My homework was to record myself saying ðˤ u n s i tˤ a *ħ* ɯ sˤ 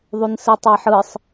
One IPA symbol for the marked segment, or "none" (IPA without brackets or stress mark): ħ